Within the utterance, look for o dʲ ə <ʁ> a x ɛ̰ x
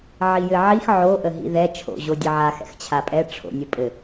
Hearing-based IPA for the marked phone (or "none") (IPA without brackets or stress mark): ʕ